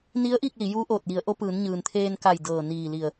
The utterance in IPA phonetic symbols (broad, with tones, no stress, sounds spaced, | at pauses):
n i˧˥ ə̯ ʔ i˥˨ k̚ l i˩˧ j uː˧˥ ʔ oː˧˩ t̚ j i˩˧ ə̯ ʔ o˧˥ p ɯː˩˧ n ɲ ɯː˩ n t̪ʰ eː˧ n k a˧˩ j d ɤː˧˩ n iː˧˩ l i˧˩ ə̯